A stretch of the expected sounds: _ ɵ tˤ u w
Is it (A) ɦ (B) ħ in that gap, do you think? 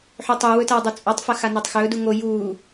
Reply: B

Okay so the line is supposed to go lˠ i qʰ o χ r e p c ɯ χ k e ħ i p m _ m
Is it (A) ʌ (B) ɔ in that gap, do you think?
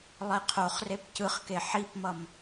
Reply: A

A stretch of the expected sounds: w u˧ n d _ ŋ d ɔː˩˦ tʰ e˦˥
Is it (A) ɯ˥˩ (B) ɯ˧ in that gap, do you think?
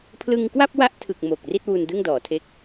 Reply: A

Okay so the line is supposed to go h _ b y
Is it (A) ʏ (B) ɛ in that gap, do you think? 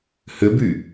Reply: A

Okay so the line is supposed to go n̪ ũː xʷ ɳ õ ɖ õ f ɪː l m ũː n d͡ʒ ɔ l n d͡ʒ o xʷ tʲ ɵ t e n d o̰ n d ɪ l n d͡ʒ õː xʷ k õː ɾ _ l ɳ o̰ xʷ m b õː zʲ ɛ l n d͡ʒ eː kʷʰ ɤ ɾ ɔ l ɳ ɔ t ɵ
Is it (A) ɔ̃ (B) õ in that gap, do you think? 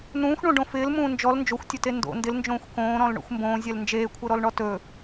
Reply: A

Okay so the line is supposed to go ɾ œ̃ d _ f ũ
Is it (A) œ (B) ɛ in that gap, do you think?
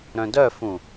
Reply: A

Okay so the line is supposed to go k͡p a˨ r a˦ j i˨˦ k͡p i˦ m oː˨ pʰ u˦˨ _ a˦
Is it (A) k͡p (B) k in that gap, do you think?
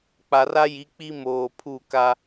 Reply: B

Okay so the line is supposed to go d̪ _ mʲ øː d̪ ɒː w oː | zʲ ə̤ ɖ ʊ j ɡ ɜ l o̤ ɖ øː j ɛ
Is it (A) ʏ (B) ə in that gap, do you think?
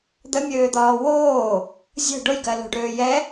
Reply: B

